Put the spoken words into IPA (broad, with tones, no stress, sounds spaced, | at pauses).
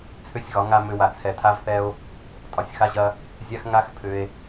t͡sʰ ʏ˦ sʲ ɣ ɒ˨˦ ŋ a˧ m ʏ˧ w a˨ t͡sʰ ɛ˨ tʰ a˦ v θ ɛ˦ o̯ | tʼ ɒ˨ sʲ x a˦ ʑ ɐ˦ | zʲ a˦ x ŋ a˦ x pʰ ʏ˧ e̯